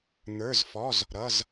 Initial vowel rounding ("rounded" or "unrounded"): unrounded